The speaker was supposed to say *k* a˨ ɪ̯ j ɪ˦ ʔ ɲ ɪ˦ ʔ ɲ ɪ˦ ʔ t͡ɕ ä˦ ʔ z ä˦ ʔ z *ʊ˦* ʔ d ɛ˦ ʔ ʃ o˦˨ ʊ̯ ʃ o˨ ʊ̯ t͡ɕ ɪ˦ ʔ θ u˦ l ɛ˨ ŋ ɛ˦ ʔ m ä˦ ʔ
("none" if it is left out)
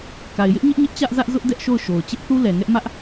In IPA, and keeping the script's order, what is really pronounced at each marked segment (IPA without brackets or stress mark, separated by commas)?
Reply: k, ʊ˦